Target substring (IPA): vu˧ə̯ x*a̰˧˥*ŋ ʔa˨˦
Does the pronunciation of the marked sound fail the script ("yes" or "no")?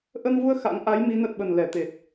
no